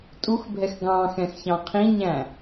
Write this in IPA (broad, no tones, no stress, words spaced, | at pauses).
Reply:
tʼuxbʱɛx ɡɑ̃xɛ̃xçɑ̃ qʰĩɲæ̃